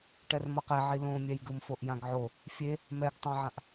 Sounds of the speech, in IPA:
ʈ ɛ r m ʌ q ɛ ʕ i l õ mʲ ɛ j ɡ ɯ m f o ʔ j ã ɡ ʕ o | fʲ e | m ɛ ɡ tˤ ã ʕ ã ʔ

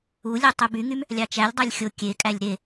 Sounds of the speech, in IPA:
u lʲ e tˤ y b y ŋ y m | lʲ ɑ t͡ʃ æ lʲ dˤ ɑ lʲ xʲ o kʲ e kʼ æ lʲ ɾ e

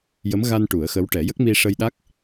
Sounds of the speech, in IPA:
j ə˧˥ m ɣ a˧ n ʈ u˨˩˦ ə̯ x ə˧˥ w ʈ ɛ˨˩˦ j ə˦˥ k̚ m i˧ ʂ ə˧ j ɗ a˦˥ k̚

